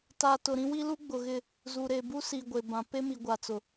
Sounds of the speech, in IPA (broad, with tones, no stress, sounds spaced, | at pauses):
t a˨ t ʊ˨ ɾ ĩ˦ w i˦ l u˦ ɡ͡b ʊ˨ ɣ ɪ˦˨ | z u˨ ɾ e˨ b u˦ s i˨ ɡʷ e˨ b ã˨ p e˦ m i˨ ɡʷ a˨ t͡s ʊ˨